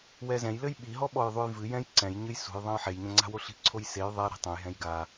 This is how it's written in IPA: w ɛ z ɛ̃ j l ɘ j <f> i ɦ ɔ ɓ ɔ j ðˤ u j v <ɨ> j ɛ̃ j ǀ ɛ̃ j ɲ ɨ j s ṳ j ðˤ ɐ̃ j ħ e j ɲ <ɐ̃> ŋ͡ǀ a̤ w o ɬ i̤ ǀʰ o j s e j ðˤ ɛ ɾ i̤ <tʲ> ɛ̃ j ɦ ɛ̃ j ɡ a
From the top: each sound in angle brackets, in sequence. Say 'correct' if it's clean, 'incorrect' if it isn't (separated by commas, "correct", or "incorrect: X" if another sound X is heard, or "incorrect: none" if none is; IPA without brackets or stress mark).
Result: incorrect: ɓ, correct, correct, incorrect: tˤ